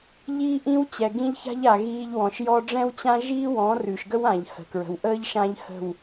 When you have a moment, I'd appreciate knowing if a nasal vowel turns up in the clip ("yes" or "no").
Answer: yes